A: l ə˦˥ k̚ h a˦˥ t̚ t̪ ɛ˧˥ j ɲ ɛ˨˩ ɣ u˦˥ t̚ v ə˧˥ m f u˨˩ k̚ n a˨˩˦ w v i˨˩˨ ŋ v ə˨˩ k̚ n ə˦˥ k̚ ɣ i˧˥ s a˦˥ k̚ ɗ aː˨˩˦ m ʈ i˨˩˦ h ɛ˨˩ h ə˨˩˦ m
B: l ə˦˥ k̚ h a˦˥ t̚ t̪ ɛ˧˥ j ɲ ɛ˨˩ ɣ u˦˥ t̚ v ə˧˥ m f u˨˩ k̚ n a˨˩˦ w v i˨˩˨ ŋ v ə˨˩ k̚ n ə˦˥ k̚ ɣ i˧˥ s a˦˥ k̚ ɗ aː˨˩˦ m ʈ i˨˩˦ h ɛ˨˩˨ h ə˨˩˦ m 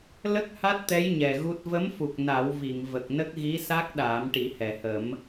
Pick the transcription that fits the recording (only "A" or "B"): A